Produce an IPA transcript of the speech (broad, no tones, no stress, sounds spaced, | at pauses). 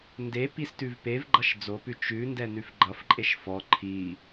n d e p i s t ʉ v p e v ɡ͡ǃ ʌ ʃ d͡z o p ʉ t͡ʃ ʉ n d ɛ n ʉ f ɡ͡ǃ ʌ f ǃʼ e ʃ f ɔ ǃʰ i